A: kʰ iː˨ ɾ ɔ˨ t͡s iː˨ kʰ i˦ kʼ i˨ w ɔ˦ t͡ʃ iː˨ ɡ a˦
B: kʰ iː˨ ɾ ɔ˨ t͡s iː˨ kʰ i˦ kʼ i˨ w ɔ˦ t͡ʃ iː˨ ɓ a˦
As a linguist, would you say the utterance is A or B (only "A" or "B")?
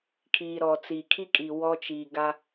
A